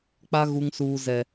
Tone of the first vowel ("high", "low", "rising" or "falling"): high